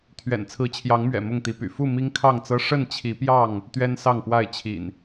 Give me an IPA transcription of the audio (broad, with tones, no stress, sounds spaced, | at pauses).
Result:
t̪ʰ ɥ ɛ̰˨˩ n t͡sʰ ɹ̩˨˦ t͡ɕʰ j ɑ˨˦ ŋ m ɥ ɛ̰˨˩ m ʊ˥˨ ŋ t̪ i˨˦ p y̰˨˩ f u˥˨ m i˦ ŋ kʰ ɑ˥˨ ŋ t͡s ɤ˦ ʂ ə˥˨ n t͡ɕʰ i˨˦ p j ɑ˥˨ ŋ | t̪ ɥ ɛ˦ n s ɑ˥˨ ŋ p w a˥˨ ɪ̯ t͡ɕʰ ḭ˨˩ n